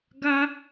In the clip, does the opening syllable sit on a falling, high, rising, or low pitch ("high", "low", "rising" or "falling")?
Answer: high